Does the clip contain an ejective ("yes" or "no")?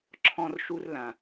no